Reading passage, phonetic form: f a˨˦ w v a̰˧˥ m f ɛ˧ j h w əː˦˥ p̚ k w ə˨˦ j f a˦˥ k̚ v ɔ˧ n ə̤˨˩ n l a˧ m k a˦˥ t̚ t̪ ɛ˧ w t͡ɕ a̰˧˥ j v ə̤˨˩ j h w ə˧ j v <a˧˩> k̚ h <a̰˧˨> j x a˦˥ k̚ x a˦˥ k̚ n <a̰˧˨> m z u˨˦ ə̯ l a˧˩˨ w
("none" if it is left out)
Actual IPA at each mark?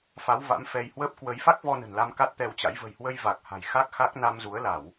a˨˩, a̤˨˩, a˧

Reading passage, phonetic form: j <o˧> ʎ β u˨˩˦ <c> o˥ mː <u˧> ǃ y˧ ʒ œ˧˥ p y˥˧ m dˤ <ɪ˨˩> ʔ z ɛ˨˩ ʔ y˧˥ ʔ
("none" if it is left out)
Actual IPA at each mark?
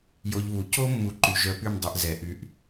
o˧, c, u˧, ɪ˧

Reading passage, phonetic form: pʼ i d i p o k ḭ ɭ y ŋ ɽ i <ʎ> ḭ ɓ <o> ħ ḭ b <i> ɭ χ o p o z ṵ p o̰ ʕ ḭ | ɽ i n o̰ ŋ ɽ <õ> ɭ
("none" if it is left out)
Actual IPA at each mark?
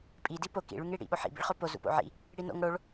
ɽ, o, ḭ, o

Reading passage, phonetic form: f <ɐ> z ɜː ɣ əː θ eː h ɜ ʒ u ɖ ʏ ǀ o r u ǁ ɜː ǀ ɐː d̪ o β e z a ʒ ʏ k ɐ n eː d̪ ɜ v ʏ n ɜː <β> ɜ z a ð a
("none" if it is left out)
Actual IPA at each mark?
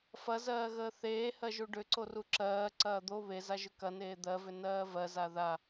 ɐ, v

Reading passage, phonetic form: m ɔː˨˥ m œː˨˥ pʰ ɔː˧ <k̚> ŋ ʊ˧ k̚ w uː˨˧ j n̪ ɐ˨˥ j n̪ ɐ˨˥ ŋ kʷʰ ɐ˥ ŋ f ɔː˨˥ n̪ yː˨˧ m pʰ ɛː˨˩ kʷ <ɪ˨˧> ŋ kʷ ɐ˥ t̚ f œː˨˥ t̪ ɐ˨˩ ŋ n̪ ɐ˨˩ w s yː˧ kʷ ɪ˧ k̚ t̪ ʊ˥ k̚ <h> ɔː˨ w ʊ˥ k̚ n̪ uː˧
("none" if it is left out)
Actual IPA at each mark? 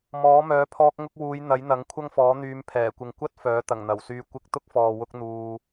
k̚, ɪ˨, f

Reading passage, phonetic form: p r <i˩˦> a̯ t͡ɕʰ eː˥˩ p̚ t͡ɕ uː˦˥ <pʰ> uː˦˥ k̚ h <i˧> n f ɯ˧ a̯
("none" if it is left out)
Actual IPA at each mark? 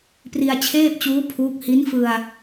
i˧, pʰ, i˦˥

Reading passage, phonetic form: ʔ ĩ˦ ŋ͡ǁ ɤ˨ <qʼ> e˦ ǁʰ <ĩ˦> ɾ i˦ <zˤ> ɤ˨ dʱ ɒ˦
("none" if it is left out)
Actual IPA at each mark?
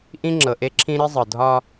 ʔ, ĩ˦, zˤ

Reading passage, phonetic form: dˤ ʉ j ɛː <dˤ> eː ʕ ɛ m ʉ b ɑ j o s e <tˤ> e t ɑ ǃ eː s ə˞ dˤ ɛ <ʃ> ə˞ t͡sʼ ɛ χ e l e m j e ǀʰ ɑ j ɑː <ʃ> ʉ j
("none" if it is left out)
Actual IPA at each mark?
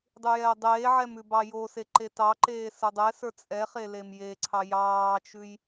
dˤ, ǃ, s, t͡ʃ

